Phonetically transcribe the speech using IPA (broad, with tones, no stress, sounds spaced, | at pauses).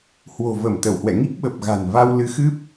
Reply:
h w o̤˨˩ v ə˧˩ m t̪ ə˧˩ w h w ɛ̰˧˨ ŋ i˦˥ k̚ ɓ ə˨˩ p̚ ɣ a̤˨˩ n v a˧ w l ɨ˨˦ x ɨ˦˥ p̚